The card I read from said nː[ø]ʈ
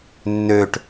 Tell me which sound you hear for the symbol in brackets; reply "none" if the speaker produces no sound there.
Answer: ø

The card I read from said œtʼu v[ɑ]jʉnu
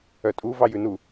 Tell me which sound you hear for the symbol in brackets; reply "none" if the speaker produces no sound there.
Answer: ɑ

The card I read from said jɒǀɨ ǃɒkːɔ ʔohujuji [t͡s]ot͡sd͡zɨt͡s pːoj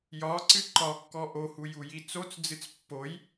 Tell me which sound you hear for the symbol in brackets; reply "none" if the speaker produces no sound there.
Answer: t͡s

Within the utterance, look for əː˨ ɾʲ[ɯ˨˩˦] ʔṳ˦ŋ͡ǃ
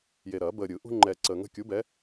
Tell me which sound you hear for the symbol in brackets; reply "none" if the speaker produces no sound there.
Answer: ɯ˨˩˦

